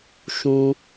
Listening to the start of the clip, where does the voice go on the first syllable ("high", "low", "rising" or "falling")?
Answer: high